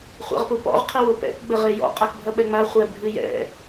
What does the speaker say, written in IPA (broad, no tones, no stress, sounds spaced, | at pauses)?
χʷ a̰ ʁ p u p ɔ̰ ʁ qʰ ɘ w o p ɛ̰ k ɡ͡b ɘ ʁ e j ɔ̰ qʼ a k bʱ ɐ ɓ ɛ ŋ͡m a χʷ ɛ bʱ ɨ j ɛ̰